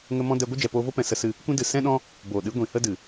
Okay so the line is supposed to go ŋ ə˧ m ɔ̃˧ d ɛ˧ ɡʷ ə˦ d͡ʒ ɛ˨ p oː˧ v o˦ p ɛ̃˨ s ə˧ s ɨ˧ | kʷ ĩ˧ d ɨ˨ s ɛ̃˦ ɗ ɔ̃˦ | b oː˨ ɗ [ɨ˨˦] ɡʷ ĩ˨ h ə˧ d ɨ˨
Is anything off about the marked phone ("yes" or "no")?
no